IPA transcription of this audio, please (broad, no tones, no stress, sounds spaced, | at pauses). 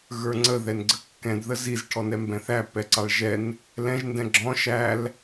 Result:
ɣ ə˞ ŋ͡ǀ ə ð ɛ n ɡ͡ǀ ə kː ɛ̃ d ð ə z i z ʈʰ ɔ n ɛ m b ɛ̃ θ æ p ɛ ǀ ɑ ɭ ʒ ɛ n | l ɛ̃ ʒ n d ɛ̃ ɡ͡ǁ ɔ̃ ʃ æ l